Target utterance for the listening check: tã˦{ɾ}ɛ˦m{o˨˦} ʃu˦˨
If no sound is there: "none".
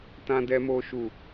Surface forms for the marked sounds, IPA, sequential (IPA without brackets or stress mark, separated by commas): d, o˦